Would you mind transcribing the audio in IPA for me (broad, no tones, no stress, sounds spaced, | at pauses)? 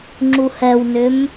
ŋ͡ǁ u h ɛ w n ʏ m